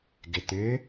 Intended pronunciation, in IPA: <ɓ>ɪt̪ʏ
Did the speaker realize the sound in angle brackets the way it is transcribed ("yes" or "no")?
no